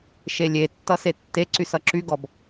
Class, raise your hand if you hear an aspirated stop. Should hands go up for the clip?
no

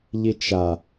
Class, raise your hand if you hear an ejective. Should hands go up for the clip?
no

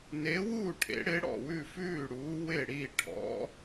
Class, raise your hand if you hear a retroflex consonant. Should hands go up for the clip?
yes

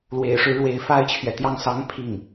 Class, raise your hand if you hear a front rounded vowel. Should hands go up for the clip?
no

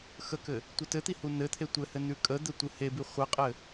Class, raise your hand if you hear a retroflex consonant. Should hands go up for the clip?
no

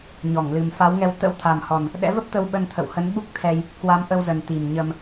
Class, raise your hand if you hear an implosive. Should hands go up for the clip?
yes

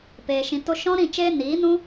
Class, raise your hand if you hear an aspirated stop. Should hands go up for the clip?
no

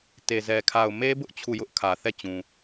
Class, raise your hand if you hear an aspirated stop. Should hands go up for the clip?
yes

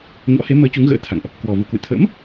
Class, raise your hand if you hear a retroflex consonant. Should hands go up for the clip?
no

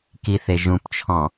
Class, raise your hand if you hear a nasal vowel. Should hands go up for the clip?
yes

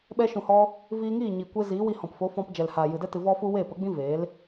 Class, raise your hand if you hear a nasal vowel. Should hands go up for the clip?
yes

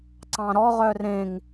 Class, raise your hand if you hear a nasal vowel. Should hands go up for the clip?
yes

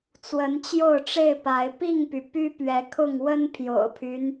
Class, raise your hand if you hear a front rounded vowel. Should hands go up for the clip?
yes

